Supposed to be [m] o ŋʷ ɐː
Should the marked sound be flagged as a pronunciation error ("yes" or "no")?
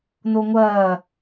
yes